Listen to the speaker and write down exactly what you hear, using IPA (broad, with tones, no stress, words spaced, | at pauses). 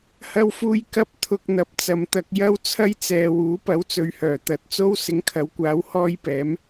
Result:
hɐ˧wfuː˧j kɐ˧p̚ t̪ʰʊ˨k̚ n̪ɐ˨˥p̚t͡sɐ˨mt̪ɐ˧k̚ jɐ˥wt͡sʰɐ˥jt͡sɛː˨ wuː˨˥pɐ˨˥wt͡sɵ˨˧ɥhœː˨˩ t̪ɐ˨˥t̚ t͡so˥w sɪ˨˥ŋkʰɐ˨˥wkʷaː˨˥w hɔː˥jpɛː˨˥m